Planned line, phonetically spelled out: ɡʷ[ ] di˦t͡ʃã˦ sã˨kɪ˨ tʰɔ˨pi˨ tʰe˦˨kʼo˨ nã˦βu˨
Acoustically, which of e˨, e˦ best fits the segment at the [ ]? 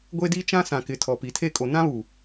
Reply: e˦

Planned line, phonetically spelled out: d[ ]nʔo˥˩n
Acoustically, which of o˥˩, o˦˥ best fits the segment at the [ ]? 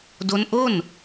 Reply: o˦˥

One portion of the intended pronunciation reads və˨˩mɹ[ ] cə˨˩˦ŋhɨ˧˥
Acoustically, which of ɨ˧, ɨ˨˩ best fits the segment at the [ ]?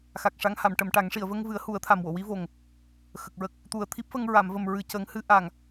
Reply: ɨ˨˩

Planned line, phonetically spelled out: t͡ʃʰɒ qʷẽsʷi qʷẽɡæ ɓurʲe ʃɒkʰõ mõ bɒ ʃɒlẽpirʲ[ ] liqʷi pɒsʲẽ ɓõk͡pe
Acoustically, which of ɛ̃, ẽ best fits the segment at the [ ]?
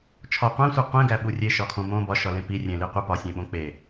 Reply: ẽ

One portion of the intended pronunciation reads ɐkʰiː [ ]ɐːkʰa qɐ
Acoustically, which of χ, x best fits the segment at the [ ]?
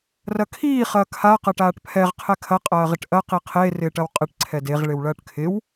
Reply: χ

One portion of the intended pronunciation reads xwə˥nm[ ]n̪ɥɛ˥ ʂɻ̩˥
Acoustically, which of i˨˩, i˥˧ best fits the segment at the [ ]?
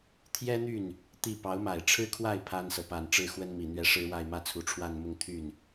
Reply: i˨˩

